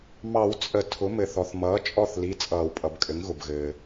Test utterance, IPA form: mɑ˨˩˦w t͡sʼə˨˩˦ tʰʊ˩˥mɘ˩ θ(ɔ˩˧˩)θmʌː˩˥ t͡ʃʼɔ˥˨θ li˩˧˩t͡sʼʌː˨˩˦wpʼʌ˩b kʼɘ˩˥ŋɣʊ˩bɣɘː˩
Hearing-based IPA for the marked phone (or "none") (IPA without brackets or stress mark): ɔ˩